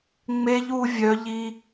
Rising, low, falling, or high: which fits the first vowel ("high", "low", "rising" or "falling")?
high